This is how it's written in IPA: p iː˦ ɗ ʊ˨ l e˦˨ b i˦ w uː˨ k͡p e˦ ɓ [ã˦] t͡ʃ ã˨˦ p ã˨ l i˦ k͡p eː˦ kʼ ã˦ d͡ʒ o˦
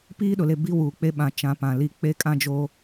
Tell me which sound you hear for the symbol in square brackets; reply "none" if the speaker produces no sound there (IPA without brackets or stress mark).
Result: ã˨